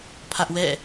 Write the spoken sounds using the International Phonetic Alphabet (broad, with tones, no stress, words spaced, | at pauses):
pʰä˦ʔwɛ̰˦˨